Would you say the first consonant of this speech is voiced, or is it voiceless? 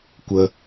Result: voiceless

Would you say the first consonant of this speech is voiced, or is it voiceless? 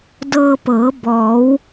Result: voiced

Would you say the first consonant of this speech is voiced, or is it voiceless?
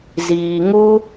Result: voiced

